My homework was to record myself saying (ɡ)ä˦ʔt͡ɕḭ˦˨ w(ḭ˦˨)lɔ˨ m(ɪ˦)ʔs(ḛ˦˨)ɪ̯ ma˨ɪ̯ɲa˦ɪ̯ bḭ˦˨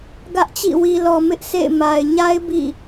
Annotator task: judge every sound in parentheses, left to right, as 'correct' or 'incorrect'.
correct, incorrect, correct, correct

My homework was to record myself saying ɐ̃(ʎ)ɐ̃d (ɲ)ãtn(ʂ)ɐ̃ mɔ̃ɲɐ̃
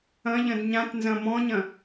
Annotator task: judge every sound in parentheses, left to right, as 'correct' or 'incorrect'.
correct, correct, incorrect

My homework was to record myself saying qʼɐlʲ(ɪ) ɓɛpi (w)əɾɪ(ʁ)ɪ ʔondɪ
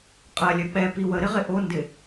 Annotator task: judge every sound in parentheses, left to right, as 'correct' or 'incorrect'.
incorrect, correct, correct

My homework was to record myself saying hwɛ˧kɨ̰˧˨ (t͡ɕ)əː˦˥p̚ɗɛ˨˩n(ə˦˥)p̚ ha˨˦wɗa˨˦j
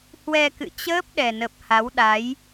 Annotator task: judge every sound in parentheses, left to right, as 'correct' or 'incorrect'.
correct, incorrect

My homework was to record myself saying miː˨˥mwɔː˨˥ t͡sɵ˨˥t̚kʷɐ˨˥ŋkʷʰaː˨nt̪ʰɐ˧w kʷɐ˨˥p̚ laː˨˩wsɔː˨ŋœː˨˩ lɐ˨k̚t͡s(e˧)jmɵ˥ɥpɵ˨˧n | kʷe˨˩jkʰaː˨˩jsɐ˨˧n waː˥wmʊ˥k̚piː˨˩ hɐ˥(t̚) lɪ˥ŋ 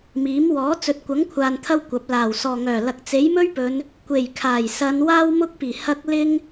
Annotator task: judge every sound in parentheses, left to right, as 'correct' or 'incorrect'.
incorrect, incorrect

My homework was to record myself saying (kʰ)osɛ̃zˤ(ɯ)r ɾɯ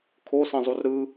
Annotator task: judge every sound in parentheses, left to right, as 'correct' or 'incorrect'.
correct, incorrect

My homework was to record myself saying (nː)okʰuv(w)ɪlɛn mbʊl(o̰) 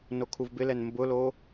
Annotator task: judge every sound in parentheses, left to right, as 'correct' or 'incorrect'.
incorrect, incorrect, incorrect

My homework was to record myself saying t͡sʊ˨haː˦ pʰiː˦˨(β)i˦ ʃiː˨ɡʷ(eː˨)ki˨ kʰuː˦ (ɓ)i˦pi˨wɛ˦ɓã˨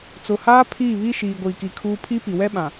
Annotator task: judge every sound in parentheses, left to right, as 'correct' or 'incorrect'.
correct, incorrect, incorrect

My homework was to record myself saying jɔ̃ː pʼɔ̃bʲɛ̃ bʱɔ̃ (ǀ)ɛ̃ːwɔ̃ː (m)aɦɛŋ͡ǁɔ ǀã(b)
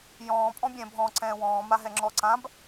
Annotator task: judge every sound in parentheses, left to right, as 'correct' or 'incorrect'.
correct, correct, correct

